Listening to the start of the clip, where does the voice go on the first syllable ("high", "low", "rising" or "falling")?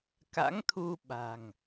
rising